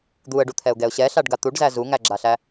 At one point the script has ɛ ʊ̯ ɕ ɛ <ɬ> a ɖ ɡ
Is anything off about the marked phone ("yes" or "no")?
no